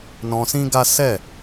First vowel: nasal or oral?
nasal